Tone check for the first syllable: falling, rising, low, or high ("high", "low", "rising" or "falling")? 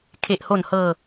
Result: low